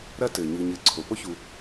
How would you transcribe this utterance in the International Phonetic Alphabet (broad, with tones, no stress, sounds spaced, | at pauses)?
ɾ ɐ˦ t ɘ˩ ɲ ɨ˨ ɲ ɘ˨ ǀʰ o˩ p o˥ ç u˨